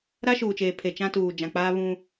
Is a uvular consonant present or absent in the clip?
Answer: absent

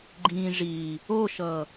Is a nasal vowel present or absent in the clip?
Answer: present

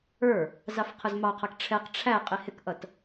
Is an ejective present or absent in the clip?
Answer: present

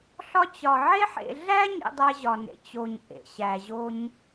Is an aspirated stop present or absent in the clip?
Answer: absent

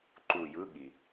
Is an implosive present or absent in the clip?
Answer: present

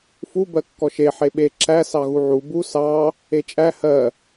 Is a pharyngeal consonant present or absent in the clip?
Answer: present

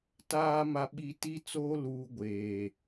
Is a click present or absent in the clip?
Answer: absent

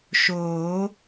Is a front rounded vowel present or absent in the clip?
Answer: absent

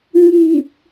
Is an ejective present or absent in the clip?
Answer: absent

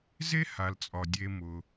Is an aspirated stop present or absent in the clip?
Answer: absent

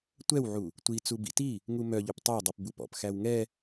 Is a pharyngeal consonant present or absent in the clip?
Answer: present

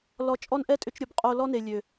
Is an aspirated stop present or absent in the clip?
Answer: absent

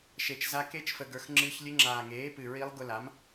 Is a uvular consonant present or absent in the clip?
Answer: absent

